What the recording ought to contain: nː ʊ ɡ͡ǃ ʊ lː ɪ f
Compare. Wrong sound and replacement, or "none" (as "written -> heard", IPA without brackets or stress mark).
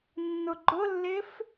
none